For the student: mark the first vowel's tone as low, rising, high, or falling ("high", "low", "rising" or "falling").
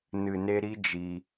low